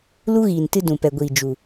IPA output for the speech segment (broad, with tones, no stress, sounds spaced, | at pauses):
l u˦ ɣ iː˨ n t ɨ˧ d ũ˨ p ɛ˨ ɡʷ iː˨ d͡ʒ u˨